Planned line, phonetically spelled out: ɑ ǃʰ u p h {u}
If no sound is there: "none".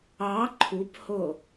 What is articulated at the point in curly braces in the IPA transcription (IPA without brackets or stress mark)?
o